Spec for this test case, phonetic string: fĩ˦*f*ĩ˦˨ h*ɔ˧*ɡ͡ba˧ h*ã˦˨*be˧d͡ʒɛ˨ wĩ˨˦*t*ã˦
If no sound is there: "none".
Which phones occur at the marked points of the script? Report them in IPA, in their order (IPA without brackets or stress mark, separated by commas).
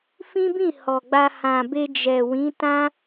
b, ɔ˨, ã˨, t